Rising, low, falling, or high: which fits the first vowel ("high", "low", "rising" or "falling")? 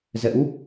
rising